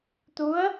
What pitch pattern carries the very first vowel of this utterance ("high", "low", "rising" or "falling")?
rising